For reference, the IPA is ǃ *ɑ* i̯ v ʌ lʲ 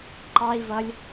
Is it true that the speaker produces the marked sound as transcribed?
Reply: yes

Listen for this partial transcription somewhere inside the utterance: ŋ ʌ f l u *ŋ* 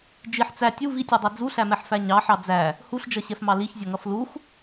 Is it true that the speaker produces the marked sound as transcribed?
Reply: no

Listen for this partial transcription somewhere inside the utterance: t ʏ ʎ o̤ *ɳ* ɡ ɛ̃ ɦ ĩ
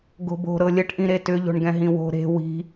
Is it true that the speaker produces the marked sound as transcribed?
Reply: yes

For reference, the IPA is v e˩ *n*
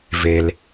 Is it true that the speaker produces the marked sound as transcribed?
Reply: no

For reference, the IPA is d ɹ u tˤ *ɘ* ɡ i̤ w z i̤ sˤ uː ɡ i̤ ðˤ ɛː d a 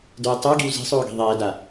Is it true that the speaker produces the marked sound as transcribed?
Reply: no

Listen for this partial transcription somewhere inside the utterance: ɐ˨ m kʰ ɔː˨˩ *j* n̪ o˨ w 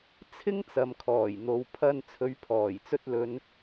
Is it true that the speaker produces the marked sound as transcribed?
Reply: yes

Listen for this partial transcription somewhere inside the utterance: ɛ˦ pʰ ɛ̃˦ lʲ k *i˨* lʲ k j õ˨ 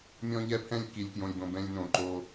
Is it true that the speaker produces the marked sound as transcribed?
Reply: yes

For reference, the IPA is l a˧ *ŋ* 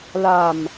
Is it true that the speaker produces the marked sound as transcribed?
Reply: no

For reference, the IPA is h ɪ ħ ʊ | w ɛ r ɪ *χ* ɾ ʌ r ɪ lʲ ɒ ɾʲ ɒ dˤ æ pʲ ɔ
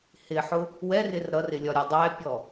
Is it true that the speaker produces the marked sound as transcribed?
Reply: no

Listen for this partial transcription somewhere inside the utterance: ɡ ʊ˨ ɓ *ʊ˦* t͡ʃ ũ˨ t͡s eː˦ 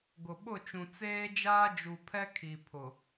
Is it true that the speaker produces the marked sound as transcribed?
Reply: no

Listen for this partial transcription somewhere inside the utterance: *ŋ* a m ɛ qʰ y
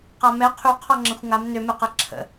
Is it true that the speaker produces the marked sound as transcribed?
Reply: no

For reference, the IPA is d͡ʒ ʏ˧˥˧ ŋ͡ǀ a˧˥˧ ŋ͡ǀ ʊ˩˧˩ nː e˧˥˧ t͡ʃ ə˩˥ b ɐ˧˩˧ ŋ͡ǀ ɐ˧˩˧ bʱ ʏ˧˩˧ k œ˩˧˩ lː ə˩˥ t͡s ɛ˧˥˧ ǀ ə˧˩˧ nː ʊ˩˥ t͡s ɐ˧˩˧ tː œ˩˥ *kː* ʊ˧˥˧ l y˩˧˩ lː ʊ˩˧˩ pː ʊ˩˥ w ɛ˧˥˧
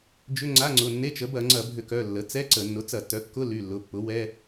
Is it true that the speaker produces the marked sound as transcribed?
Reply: yes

